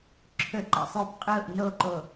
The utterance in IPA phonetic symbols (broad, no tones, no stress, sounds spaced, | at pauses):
ǁʰ ɵ ǃ ḛ sˤ j u p qʼ ʊː ʔ n o ǃ o